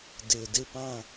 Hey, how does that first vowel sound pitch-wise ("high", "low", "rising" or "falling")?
low